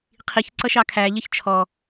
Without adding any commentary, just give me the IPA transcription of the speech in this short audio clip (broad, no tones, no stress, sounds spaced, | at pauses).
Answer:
qʰ i ç ǀ ʌ ʃ ɑ kʰ æ ʎ ə ç t͡ʃʰ ɔ